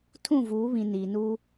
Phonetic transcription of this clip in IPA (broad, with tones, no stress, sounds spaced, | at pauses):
tʰ ũ˦˨ v uː˨˦ β ĩ˨ n iː˨ n uː˦